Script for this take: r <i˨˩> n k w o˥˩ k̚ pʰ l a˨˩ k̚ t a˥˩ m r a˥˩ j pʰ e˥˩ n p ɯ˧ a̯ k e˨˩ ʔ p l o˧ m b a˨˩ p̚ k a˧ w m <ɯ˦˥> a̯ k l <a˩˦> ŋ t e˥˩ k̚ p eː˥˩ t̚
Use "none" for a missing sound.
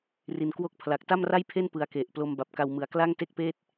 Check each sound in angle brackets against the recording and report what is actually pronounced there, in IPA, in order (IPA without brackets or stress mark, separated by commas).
i˨˩, ɯ˨˩, a˥˩